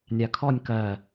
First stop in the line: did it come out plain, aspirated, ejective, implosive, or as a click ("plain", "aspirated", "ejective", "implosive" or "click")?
aspirated